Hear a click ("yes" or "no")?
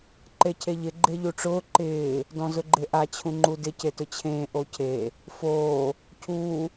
yes